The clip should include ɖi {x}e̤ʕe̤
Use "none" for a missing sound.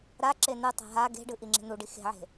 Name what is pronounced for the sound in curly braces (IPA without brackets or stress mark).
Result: x